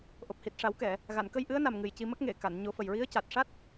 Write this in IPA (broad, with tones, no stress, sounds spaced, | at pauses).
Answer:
ʔ o˨˩ p̚ h i˨˩ t̚ ʂ a˨˩˦ w k ɛ˨˩˨ | ɣ a˨˩˨ n k ə˧ j ʔ ɨ˧˥ ə̯ n a˨˩ m ŋ ɨ˨˩ j c i˧ m ə˦˥ k̚ ŋ e˨˩˨ k a˨˩˨ n ɲ o˨˩˦ f ə˨˩ j ɹ i˧˥ ə̯ c a˨˩ t̚ ʂ a˦˥ t̚